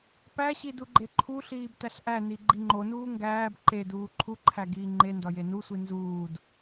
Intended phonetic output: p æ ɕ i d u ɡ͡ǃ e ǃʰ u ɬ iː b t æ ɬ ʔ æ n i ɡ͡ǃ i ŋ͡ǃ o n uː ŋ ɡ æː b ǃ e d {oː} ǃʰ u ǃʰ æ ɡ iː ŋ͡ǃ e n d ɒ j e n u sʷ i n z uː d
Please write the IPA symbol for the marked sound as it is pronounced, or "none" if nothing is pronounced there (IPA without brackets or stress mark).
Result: uː